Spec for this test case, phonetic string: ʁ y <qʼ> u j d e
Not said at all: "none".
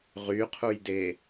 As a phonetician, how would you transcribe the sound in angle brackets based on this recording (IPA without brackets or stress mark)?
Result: qʰ